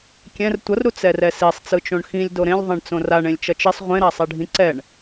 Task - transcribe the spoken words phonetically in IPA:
kʲ ɛ̃ r tʷ ʌ r ɾ u t͡s ɛ r ɛ s i sˤ t͡s ɯ t͡ʃ õ ɳ x ĩ lʲ d o ɾ ẽ lʲ ðˤ ɛ̃ ɳ t͡s õ r a ɳ ẽ lʲ t͡ʃ ʌ t͡ʃ i sˤ ʁʷ ẽ ɾ a sˤ ɛ ɖʱ ĩ ǀ ɛ ɳ

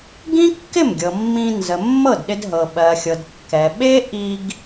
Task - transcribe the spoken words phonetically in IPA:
ɡ ĩ˥ kː ɪ˥˩ m ɡʲ ɤ˩ mː ĩ˧ n z ə˩ mː ɤ˥˩ d ɗ ɪ˧ d ɦ ɤ˩ ɓ ɜ˩ xʲ ɤ˩ d kː ɛ˩ ɓ e˥ ʔ i˧ ɡ

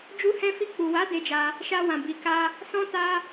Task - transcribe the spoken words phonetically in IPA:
d͡ʒ u˧ h ɛ̃˧ f i˧ k͡p u˨ w a˨˦ d e˧ d͡ʒ a˧ | ʃ a˧ w ã˨ b i˨ k a˧ | s ɔ̃˧ t a˧

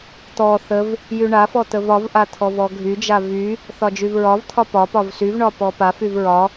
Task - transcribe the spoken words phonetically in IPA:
t̪ ɔ θ ə v | j y ɳ a f ɔ t̪ ə v ɒ v ʔ a t̪ʰ ɔ v ɔ ɡʱ y d͡ʒ a v y | θ ɒ d͡ʒ y v ɹ ɒ v t̪ʰ ɒ p ɒ p ɒ v s y v ɳ ɒ p ɔ p a f y v ɹ ɒ

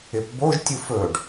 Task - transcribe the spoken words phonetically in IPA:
ɪ p b o ʒ tʲ u f ɵ ɖ

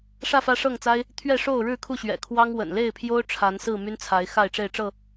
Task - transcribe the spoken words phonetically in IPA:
ʂ ä˥˨ f ä˦ ʂ ɤ˥˨ ŋ t͡s a˦ ɪ̯ | t̪ʰ ɥ ɛ˥˨ ʂ o˥˨ ʊ̯ ɻ ɻ̩˥˨ kʰ u˥˨ ɕ ɥ ɛ̰˨˩ kʰ w ɑ˦ ŋ w ə̰˨˩ n l e˥˨ ɪ̯ pʰ j o˦ ʊ̯ ʈ͡ʂʰ a˨˦ n s ɹ̩˥˨ m y˦ n t͡sʰ a˨˦ ɪ̯ x a˥˨ ɪ̯ ʈ͡ʂ e˥˨ ɪ̯ ʈ͡ʂ ɤ˥˨

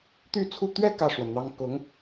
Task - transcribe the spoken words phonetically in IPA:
t̪ y˥˧ t͡sʰ u˥˧ t̪ ɥ ɛ˥˧ k ä˥˩ ʂ w ə˩ n n̪ ɑ˥ ŋ k ʊ˧˥ ŋ

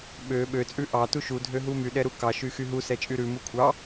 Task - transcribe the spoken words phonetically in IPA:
ɓ ø ɓ ø t͡sʼ ʉ ʔ ɑ t u ʃ u dʱ ø ɦ u m y ɗ ɛ ɾ u k ɑ ʃ y x y ɦ u s ɛ t͡ʃʼ y ɾ ʉ m u kʷʰ ɑ

